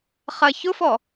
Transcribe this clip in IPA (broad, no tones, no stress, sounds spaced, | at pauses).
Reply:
χ ɐ ç ʊ f ɔ